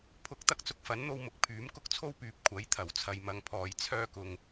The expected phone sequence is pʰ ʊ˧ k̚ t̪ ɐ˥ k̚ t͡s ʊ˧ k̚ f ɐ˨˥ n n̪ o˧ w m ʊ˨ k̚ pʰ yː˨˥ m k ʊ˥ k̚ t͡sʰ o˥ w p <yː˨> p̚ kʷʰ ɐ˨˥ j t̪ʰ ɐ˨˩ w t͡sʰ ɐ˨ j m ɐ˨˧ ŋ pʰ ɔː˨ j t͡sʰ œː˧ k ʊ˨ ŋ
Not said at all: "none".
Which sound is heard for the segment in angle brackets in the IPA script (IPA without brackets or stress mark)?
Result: yː˨